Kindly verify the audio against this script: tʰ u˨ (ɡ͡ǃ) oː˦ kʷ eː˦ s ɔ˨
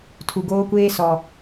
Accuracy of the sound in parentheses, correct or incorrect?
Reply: incorrect